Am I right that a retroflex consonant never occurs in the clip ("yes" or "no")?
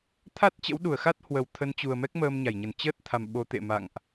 yes